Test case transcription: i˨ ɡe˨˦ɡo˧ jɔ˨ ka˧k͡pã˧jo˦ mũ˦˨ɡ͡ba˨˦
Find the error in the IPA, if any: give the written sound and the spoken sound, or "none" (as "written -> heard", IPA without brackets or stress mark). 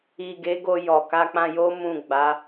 none